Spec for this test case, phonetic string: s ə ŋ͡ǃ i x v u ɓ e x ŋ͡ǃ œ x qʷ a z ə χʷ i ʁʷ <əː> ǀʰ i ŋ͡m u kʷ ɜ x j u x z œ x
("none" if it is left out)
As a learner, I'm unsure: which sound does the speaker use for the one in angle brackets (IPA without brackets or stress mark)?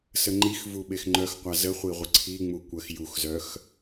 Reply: ə